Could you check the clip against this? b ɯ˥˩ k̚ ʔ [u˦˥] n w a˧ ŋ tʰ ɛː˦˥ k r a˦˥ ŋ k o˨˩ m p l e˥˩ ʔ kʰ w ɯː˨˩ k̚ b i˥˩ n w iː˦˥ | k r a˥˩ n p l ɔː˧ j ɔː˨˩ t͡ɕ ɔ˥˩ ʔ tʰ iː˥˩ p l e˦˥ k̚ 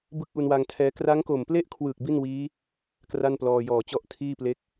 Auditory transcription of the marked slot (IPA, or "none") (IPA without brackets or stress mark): u˧